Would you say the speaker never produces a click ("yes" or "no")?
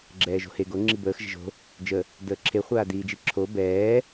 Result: no